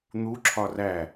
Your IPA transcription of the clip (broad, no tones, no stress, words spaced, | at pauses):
n̪uǁʰɒ ræ